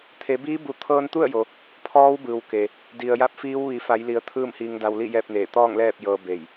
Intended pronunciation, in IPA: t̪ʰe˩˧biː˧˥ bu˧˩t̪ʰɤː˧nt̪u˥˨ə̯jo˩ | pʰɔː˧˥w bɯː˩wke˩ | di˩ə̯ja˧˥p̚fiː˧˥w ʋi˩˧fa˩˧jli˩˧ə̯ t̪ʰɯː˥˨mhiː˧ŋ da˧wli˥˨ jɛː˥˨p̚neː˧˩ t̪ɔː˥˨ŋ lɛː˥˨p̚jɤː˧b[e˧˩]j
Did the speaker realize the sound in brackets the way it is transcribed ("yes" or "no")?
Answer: yes